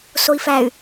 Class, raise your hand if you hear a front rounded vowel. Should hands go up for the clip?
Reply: yes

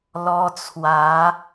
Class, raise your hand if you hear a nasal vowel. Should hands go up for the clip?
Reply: no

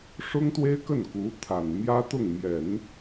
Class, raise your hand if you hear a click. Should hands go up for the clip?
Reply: no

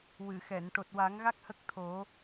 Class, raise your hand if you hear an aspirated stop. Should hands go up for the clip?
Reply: yes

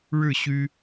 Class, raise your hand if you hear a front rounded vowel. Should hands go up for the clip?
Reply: yes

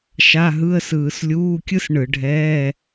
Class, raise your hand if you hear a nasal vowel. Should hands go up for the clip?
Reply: no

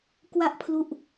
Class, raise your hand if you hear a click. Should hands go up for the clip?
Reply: no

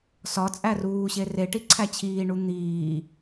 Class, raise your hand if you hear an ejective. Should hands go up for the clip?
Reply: yes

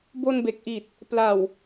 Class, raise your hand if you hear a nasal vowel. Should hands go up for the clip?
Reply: no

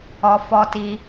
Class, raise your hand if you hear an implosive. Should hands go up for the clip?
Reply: no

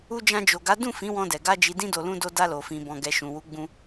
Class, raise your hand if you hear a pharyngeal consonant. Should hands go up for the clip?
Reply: no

